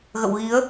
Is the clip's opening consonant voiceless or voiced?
voiced